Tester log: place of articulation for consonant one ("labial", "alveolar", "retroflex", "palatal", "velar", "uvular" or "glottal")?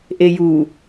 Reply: glottal